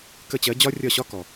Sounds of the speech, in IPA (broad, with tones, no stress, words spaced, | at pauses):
kə˥˩t͡ɕɜ˧˥ d͡ʑɒ˥rʲɒ˥˩ɕɒ˥ kɔ˩